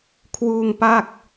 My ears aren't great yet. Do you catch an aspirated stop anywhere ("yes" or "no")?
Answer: yes